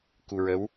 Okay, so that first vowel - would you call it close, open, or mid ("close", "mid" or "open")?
close